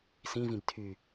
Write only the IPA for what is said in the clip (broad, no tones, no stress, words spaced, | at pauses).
sĩvĩb tʰy